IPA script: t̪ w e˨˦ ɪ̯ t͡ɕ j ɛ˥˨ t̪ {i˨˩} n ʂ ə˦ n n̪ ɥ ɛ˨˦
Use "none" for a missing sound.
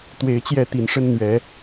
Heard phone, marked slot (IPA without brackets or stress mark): i˨˩